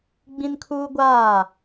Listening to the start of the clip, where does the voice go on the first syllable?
high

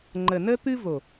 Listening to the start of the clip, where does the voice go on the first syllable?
low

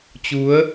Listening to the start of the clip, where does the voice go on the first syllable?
rising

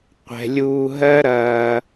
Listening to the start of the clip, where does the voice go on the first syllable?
low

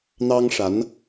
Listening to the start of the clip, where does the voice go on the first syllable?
high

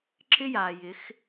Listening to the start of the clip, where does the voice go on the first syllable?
high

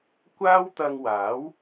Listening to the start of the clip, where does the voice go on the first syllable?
high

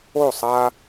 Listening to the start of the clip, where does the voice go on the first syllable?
falling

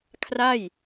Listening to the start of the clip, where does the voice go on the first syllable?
falling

